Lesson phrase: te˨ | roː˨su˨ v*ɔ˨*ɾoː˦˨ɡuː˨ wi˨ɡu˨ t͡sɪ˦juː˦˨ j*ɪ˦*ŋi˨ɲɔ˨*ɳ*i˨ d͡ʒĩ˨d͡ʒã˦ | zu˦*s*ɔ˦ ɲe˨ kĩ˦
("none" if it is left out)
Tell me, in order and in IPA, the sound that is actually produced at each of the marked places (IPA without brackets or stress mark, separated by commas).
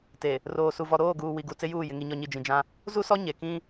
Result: ɔ˨, ɪ˨, ɲ, s